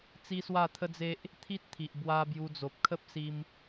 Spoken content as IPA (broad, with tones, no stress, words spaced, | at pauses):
t͡si˦swa˥˧t̪ʰə˦d͡ze˦ʔ | t̪ʰi˦t̚t̪ʰi˨ʔbwa˧ bju˧d͡zo˨p̚ kʰə˦p̚si˧m